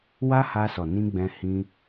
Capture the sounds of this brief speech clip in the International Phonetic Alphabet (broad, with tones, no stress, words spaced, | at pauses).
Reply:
wa˦ha˧sɔ˨ nĩ˧ ɡ͡bɛ̃˧hĩ˧